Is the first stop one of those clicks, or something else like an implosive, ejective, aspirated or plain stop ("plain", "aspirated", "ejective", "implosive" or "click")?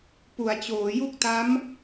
plain